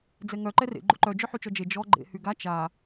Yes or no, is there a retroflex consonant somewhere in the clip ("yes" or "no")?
no